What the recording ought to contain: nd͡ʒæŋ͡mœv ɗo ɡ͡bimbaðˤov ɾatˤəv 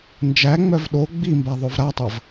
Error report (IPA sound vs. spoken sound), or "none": none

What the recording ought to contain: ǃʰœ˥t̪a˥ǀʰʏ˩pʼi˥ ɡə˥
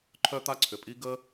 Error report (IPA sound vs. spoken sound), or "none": none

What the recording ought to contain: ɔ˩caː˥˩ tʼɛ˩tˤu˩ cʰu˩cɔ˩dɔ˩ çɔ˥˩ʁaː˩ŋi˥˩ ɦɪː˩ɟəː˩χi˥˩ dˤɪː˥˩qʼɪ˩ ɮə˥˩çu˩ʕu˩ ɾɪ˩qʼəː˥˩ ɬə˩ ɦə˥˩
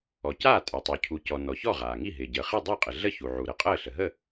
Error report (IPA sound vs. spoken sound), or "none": d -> n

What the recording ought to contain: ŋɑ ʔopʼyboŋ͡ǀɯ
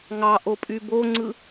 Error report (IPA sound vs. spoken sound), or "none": none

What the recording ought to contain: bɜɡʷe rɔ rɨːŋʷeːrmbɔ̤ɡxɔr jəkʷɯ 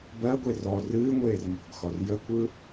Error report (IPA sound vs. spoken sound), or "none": none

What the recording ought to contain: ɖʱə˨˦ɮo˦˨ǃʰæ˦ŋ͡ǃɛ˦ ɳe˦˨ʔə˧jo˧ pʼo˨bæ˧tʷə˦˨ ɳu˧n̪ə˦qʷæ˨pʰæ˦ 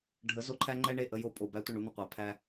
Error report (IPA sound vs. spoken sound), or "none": ɮ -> z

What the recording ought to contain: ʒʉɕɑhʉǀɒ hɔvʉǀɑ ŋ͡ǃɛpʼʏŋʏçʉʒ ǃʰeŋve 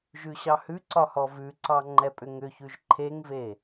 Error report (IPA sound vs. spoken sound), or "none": none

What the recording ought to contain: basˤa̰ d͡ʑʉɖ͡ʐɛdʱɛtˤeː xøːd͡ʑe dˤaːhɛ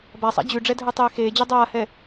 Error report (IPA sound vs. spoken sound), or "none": øː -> eː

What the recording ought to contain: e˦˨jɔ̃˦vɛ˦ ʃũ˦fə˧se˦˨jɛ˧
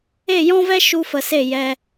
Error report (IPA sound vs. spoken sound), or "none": ũ˦ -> u˦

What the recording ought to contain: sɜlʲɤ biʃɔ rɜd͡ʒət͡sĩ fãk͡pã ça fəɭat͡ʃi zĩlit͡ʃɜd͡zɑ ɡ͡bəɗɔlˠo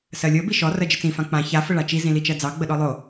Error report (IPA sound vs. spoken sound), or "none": none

